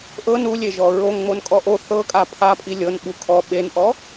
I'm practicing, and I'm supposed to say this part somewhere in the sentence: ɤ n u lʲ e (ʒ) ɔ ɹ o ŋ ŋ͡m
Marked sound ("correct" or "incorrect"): correct